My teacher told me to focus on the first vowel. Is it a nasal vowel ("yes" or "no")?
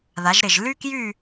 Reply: no